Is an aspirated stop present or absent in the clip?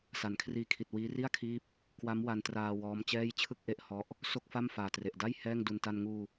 present